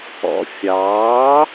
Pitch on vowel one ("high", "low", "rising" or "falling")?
low